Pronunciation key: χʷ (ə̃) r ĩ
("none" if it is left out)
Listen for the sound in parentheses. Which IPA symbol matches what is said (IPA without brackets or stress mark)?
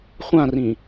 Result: ã